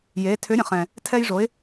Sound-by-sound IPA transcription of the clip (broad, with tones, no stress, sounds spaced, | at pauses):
j e˩˧ tʰ ʏ˩˧ ɾʲ ə̃˩ χ ɛ̃˩ | tʰ ɛ˧ j ʐ o˩˧ ɪ̯